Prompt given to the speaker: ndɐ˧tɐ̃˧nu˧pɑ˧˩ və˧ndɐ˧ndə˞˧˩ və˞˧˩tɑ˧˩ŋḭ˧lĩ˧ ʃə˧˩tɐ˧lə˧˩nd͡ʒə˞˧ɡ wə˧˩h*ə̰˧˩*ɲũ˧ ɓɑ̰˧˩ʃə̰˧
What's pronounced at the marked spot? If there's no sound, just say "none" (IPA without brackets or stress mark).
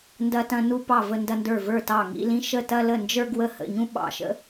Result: ə̰˧˩